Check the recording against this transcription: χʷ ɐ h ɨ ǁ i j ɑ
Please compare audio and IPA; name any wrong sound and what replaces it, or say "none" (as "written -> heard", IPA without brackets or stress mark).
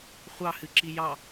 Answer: ɐ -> ɑ